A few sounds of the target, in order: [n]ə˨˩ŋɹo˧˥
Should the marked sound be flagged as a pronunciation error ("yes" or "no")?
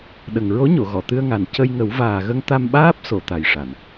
yes